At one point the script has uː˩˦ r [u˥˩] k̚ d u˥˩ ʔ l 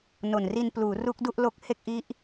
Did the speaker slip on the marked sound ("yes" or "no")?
yes